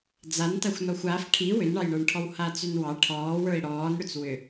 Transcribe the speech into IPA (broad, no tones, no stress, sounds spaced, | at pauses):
d͡z a n t a xʷ n ɔ xʷ a f ʈʰ i w ʏ n ɳ ɑ j ɳ ə˞ ɳ ʈʰ ɔ w h aː t͡s ʏ n w ɑ ʈʰ ɔː w ə˞ i̯ ɽ ɔː n ɽ ʏ t͡s w ʏ